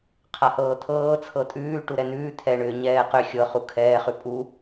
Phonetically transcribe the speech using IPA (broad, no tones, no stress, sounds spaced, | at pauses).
qʰ a h ɤː t̪ʰ ɤː t͡sʰ ɤ tʼ ʉː ʈ u ɾ ɛ n ʉː t̪ʰ ɛ ɳ ʏː ɲ ɛː q ʏ xʲ ɤ χ u kʰ ɛː χ ʉ pʼ u